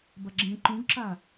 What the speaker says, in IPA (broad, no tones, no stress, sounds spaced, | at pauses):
b ɐ ɡ͡ǁ ẽ ǃ ũ ɡ ǁ a